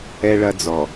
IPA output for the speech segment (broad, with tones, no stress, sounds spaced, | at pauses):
ɛ˦ ɭ ɐ˦ d͡z ɔ˨